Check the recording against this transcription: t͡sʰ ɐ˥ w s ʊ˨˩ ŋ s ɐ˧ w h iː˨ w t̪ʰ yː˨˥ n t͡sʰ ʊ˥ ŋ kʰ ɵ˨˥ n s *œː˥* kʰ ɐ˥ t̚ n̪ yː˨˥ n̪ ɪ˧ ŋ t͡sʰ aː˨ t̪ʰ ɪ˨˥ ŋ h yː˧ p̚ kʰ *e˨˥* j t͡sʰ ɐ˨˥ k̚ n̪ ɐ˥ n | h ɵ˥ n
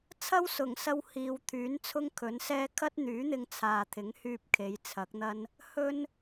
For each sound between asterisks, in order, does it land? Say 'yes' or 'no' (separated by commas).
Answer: no, no